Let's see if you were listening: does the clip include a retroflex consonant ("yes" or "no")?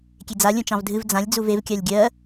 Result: no